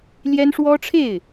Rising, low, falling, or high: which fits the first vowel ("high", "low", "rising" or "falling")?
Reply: high